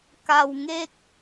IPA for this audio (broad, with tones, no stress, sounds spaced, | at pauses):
k a˧ w ŋ e˥˩ k̚